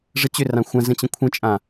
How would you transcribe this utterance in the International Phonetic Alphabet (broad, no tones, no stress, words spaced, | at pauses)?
ʐət͡ɕʏrã xʷã zə̃t͡ɕə̃kʷʰə̃t͡ʃʼã